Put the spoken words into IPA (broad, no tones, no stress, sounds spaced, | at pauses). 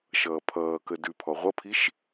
ʃ ʌː pʰ ʌː k ə d ʉ pʰ ɔ ʁʷ ʌ pʰ i ʃ